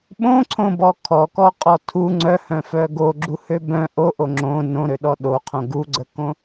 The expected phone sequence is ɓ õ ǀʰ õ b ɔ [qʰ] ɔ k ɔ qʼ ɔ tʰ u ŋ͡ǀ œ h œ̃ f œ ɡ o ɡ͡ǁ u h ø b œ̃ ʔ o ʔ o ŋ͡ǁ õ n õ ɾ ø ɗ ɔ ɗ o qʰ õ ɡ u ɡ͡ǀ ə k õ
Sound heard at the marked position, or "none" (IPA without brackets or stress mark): kʰ